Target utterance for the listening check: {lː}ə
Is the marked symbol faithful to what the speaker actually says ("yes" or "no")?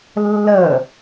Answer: yes